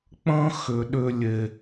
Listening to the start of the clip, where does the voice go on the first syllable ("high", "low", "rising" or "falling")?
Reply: high